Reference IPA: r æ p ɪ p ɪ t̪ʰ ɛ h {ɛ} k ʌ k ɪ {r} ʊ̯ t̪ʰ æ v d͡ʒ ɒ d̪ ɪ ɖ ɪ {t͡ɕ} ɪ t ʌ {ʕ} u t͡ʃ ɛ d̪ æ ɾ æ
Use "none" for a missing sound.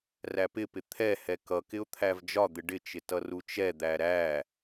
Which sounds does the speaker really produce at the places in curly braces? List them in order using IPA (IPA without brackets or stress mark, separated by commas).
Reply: ɛ, none, t͡ʃ, r